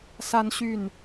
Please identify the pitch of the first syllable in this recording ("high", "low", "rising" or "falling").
high